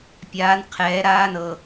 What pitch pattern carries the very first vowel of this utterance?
rising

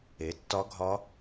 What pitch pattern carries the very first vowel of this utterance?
rising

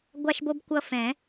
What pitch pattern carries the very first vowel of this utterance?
high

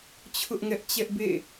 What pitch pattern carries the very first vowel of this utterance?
high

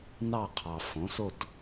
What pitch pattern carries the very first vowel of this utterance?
falling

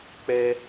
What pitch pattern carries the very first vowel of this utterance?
high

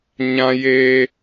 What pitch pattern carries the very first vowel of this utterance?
high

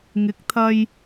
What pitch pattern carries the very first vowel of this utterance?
rising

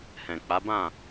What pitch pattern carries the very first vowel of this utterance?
low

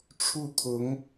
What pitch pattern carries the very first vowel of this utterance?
falling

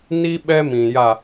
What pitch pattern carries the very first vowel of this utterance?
high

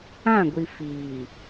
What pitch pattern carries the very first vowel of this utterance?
falling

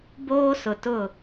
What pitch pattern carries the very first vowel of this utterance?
high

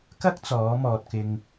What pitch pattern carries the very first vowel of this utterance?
high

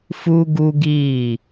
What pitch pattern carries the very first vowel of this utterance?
high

